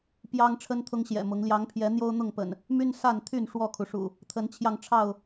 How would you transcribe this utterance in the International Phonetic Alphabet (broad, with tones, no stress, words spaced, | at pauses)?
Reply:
pjɑ˦ŋ ʈ͡ʂʰə˦nt̪ʰʊ˦ŋɕjɛ̰˨˩mʊ˨˦ŋ ljɑ˨˦ŋpʰjɛ˨˦ n̪jo˦ʊ̯n̪ʊ˥˨ŋpə̰˨˩n | my˦nsa˥˨nt̪ʰy˥˨n ʂwɔ˥˨kʰu˩ʂṵ˨˩ | t̪ʰə˨˦nt͡ɕʰjɑ˧ŋʈ͡ʂʰɑ˥˨ʊ̯